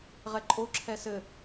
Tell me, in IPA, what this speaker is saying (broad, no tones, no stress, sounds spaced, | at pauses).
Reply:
ʁ ɛ ǃʼ o ǁʰ ɛ s ɘ